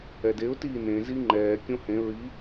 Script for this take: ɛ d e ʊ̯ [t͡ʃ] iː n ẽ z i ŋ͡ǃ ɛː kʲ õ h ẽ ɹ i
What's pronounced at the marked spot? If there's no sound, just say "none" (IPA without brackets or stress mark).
t